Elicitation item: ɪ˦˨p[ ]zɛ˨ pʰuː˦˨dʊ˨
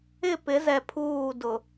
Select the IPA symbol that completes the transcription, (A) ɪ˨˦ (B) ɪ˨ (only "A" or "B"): A